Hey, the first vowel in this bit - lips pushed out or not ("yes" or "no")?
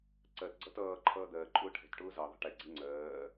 no